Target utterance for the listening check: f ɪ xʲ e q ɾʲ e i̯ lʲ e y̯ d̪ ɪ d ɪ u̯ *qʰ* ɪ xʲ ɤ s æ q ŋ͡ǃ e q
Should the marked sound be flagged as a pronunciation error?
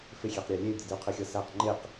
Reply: no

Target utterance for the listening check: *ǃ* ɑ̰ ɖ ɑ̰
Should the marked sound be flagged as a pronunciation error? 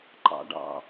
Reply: no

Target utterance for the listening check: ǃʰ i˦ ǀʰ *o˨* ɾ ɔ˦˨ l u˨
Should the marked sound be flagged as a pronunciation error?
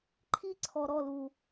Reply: yes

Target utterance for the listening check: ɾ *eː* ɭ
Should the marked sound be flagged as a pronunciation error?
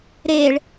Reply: no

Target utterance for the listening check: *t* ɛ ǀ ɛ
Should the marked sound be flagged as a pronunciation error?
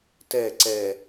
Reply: no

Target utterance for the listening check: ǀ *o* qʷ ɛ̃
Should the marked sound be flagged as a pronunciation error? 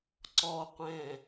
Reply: yes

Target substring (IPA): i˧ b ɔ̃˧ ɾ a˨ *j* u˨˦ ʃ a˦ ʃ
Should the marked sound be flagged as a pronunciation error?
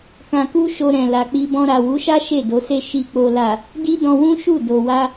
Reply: yes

